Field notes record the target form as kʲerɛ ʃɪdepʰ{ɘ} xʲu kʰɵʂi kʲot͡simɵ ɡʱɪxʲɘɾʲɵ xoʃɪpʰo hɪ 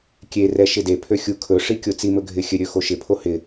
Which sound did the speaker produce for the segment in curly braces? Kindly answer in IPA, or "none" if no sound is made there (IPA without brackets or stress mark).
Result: ø